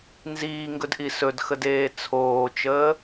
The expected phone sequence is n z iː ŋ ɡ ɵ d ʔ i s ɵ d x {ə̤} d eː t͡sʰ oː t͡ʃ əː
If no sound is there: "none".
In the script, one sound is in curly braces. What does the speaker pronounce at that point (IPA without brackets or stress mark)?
ə